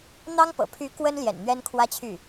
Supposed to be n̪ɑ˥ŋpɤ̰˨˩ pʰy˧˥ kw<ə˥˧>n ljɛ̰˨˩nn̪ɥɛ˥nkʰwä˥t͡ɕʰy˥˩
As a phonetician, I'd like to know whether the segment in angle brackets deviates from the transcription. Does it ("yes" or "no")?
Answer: yes